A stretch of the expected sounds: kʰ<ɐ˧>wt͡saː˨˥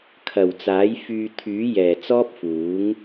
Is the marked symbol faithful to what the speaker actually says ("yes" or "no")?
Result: no